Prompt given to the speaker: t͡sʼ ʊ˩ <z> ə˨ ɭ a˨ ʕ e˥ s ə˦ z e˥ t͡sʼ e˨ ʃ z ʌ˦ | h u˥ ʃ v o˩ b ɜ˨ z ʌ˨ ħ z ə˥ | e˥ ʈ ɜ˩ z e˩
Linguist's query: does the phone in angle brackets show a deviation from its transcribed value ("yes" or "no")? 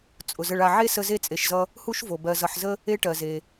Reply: no